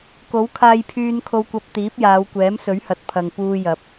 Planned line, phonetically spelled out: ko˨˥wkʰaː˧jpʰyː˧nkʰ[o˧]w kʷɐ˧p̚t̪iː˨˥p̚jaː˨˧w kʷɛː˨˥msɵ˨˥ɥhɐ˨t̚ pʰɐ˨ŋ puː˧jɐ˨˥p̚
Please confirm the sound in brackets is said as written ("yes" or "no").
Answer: yes